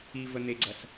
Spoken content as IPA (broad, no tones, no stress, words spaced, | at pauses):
ivən̪eɡ͡ǀɐs